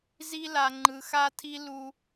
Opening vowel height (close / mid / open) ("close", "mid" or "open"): close